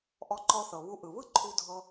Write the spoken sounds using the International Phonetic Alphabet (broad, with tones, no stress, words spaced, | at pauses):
ʔɔ˧ǃɔ˧θɤ˩βu˧ ʔɯ˩βɯ˥ ǃʰu˧dʱɤ˧